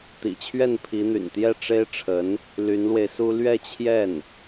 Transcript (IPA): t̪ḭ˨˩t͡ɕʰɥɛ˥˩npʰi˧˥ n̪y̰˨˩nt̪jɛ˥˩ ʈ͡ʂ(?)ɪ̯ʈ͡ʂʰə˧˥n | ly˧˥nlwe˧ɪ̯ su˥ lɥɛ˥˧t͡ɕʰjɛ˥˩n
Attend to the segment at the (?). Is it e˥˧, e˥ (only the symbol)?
e˥